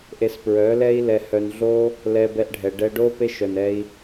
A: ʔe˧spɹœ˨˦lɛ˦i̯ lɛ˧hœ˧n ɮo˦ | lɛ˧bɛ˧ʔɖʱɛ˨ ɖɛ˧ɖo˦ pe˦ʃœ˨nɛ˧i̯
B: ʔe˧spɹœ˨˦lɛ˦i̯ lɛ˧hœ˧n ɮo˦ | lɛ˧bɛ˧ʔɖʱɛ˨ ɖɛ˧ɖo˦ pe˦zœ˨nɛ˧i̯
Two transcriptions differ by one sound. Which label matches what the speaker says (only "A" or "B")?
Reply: A